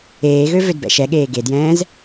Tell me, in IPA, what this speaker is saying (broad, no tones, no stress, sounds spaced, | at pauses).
eː ɣ ø v ø d b ɛ̰ ʃ ɛ ɠ eː ɡ e d j ɛ̃ː z